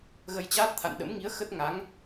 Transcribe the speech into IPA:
ɣ ə˧ j t͡ɕ aː˦˥ t̚ t̪ʰ a̰˧˨ n ɗ ə̰˧˥ m ŋ i˨˦ ə̯ x ə˦˥ t̚ ŋ a˨˦ ŋ

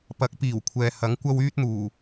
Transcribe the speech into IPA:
p ɐ˨˥ k̚ p iː˨˩ w kʷʰ ɛː˨ h ɐ˨˥ ŋ kʷ ɐ˥ w yː˥ t̚ n̪ uː˨˩

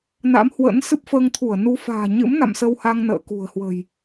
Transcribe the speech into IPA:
n a̰˧˥ m h w ə̰˧˥ n s ɨ˦˥ p̚ f əː˧ ŋ t̪ʰ u˧˩ ə̯ n u˧ f a̤ː˨˩ ɲ ɨ̰˧˥ m n a̰˧˨ m s ə˧ w h a˧ ŋ n ə̰ː˧˨ k ṳ˨˩ ə̯ h w ə̤˨˩ j

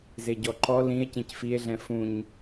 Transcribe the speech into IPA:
z e ɟ ɔ ǃ ɔ l ĩ e̯ c ẽ c f i e̯ ɮ ɛ̃ f ũ ɲ

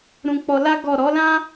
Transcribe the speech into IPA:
ɾ ũ˧ k͡p ɔ˧ l a˦ ɡ ɔ˦˨ ɾ ɔ˨˦ l ã˦

